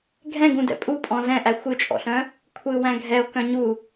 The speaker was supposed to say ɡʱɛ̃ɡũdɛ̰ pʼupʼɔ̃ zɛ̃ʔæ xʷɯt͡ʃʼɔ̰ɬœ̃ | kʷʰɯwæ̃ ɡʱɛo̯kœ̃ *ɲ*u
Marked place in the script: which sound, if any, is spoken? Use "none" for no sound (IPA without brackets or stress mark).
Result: ɲ